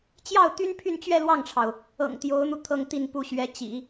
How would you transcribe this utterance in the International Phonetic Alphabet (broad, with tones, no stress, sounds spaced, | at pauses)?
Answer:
t͡ɕ j ɑ˥˩ ʊ̯ t̪ y˥ n pʰ y˥˧ n t͡ɕ ɥ ɛ˥˧ l w ɑ˥˩ ŋ ʈ͡ʂʰ ɑ˩ ʊ̯ | ɤ̰˨˩ ŋ t̪ j o˧˥ ʊ̯ n̪ u˧ t̪ʰ ɤ˥˧ ŋ t̪ i˥˧ n p u˥˩ ɕ ɥ ɛ˧˥ t͡ɕ ḭ˨˩˦